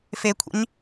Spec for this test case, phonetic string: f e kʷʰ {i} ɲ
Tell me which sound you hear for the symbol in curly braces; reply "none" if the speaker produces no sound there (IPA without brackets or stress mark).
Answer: ḭ